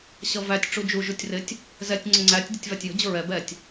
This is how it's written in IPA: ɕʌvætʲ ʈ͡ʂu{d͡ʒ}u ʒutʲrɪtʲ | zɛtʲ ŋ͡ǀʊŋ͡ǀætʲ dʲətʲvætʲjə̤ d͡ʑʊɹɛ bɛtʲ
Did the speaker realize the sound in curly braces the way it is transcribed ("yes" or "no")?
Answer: yes